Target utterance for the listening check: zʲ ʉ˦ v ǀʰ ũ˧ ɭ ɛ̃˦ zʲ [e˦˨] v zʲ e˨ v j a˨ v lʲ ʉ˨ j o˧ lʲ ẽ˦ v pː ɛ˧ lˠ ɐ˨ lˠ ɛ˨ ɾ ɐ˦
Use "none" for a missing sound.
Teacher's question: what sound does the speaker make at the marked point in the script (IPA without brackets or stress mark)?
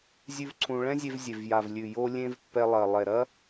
e˧